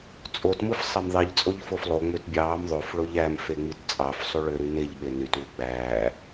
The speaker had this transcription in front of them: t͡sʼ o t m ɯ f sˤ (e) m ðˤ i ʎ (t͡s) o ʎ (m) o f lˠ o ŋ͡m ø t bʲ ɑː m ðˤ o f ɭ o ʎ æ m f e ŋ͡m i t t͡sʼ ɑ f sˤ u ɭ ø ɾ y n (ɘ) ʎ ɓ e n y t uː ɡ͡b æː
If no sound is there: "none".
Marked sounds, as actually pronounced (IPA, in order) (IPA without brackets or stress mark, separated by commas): e, t͡sʼ, f, e